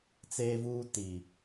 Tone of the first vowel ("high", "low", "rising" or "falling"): high